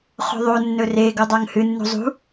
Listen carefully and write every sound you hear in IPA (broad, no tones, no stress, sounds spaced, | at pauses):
χ o̤ ðˤ o nː ɵ r e ɡ o dˤ a ŋ h ɨ nː ṳ zˤ ṳ